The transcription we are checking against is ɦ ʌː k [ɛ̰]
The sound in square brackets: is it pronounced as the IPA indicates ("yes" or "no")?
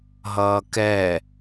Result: no